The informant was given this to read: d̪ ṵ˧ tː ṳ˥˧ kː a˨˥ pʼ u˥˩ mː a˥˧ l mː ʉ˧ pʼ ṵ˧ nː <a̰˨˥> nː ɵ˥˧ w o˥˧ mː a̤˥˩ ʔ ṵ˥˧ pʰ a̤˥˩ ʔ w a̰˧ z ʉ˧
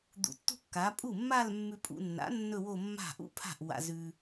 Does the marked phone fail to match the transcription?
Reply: no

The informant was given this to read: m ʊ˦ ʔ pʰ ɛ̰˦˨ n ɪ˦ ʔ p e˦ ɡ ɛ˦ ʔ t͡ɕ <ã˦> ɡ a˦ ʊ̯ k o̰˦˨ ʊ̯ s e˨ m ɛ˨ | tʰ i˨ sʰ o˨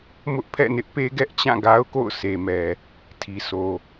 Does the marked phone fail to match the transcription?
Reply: yes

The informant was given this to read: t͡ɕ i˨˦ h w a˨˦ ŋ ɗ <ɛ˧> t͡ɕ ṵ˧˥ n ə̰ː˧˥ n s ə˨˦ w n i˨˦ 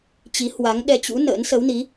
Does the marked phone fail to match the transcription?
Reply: no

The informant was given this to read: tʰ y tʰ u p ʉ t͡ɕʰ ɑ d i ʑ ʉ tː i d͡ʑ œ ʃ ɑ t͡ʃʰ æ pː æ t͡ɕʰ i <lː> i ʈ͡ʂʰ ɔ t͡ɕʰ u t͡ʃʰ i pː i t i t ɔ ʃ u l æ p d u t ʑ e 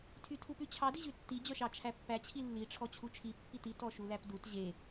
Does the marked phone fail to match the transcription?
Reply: no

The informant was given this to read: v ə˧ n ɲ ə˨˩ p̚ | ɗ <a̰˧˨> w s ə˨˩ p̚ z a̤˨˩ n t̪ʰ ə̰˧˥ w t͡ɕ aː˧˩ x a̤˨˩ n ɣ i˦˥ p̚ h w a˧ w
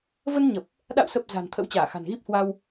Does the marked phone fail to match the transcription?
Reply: no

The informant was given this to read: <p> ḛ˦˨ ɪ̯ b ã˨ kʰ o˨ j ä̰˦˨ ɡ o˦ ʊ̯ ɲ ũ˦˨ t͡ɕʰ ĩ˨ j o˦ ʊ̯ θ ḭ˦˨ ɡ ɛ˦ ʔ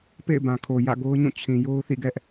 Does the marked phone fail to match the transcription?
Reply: no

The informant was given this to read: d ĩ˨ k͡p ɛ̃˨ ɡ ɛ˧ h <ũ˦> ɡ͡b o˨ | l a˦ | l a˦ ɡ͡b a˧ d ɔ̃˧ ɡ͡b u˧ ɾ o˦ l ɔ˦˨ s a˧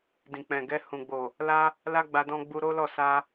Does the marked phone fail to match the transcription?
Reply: yes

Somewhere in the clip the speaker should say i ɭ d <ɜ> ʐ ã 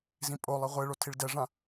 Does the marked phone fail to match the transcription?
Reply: yes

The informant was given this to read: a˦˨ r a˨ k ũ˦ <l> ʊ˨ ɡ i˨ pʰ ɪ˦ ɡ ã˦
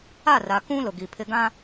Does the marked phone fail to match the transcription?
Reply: no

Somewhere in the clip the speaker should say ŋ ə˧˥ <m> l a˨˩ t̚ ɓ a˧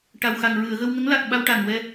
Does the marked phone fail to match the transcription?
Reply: yes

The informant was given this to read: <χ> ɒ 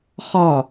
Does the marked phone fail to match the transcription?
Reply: no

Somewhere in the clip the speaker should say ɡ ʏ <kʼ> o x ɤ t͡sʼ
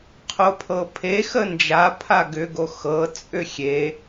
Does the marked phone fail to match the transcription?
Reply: yes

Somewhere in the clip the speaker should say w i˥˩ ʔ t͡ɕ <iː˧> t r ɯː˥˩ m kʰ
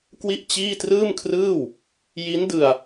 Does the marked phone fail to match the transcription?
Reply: yes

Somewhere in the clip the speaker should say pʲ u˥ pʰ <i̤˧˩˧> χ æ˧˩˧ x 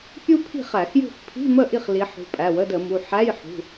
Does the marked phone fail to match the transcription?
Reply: yes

